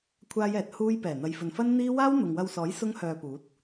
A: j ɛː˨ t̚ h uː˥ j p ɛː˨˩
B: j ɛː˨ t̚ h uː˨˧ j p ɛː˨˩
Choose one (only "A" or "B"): A